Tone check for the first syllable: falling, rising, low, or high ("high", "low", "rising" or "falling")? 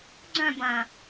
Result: falling